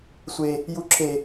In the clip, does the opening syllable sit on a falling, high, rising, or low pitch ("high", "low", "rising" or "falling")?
high